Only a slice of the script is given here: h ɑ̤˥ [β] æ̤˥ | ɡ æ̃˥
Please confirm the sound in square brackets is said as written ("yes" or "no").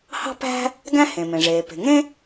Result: no